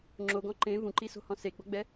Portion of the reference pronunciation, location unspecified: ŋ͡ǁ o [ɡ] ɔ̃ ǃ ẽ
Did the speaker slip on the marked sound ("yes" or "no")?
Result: no